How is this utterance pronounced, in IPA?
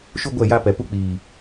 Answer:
ʃ u˦ ɡʷ ɛ˦˨ j a˦ p ɛ˨ p u˦ k͡p iː˨

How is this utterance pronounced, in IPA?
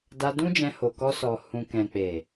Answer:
d a˧ d ũ˦ d͡ʒ ɛ̃˧ h o˨ k ɔ˧ s ɔ˨ h ũ˨ k ɛ̃˨ k͡p e˨

